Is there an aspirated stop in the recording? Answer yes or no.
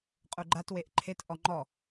yes